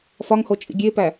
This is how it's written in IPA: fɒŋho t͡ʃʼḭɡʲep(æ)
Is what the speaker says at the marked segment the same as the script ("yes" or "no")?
yes